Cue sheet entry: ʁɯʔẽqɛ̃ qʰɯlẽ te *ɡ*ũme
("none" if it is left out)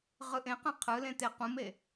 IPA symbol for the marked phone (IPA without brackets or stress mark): q